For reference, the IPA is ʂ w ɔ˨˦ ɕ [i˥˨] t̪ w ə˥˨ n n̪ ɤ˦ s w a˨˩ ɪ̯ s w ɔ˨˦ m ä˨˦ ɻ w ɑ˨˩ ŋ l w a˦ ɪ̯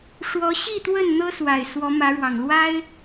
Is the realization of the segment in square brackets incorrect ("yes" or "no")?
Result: no